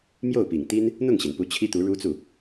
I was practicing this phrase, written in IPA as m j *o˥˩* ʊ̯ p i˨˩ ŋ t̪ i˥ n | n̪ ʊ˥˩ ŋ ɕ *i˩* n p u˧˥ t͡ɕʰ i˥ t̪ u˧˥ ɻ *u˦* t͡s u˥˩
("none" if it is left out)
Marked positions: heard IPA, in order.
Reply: o˥˩, i˩, u˥

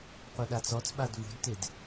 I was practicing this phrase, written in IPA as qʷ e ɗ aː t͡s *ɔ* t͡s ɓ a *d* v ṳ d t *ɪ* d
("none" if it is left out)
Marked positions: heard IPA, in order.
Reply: ɔ, d, ɪ

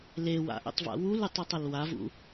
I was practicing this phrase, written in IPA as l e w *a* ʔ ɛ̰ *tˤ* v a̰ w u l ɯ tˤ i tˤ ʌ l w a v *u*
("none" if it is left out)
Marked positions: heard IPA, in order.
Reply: a̰, tˤ, ṵ

